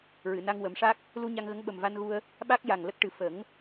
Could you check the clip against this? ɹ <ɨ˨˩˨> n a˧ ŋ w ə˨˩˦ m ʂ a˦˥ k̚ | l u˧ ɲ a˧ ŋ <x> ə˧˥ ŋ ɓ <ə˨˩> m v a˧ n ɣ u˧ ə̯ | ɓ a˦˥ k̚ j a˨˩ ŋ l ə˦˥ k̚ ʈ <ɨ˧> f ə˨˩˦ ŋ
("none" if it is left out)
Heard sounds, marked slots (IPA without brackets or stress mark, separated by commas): ɨ˨˩˨, ɣ, ə˨˩, ɨ˨˩